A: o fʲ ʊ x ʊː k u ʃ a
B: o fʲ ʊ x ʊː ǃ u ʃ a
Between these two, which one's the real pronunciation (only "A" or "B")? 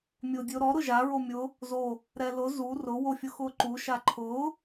B